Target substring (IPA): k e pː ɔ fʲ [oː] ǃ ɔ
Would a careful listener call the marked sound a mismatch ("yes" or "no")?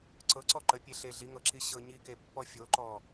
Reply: yes